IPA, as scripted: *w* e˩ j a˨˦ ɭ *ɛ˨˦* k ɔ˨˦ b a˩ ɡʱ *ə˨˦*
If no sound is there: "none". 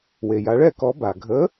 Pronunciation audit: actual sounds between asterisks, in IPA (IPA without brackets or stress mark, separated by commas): w, ɛ˥˧, ə˨˦